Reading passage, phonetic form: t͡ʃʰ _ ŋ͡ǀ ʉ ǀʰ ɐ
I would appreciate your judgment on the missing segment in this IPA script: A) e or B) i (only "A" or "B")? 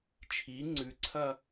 B